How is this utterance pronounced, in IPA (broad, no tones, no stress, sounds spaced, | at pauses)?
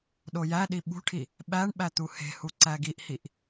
ɗ o j æ ɗ i ɓ ṳ ʈʰ i | ɓ æ ɳ ɓ æ t̪ u h e̤ h u ǀ æ ɡ i ʔ h i ʔ